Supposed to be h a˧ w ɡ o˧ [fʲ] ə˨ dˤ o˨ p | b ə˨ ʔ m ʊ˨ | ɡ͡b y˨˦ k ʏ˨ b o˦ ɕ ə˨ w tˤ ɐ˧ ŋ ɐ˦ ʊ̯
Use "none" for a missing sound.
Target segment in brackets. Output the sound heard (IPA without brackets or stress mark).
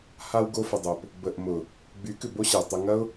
f